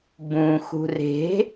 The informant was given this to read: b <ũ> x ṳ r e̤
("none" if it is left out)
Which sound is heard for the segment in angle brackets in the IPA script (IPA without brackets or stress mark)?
ũ